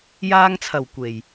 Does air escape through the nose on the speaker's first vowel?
no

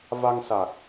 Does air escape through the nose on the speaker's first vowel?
no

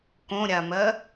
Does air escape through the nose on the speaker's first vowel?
yes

